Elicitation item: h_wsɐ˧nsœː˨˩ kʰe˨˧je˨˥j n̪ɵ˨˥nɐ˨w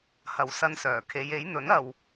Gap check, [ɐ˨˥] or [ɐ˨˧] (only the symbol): ɐ˨˧